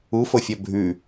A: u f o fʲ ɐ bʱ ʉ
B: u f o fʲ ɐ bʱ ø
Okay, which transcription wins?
A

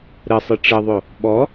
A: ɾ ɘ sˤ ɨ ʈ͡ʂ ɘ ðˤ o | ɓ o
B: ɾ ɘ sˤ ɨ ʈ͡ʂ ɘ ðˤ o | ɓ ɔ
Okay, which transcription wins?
B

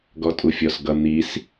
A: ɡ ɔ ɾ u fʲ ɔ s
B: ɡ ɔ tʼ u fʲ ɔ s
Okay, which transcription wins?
B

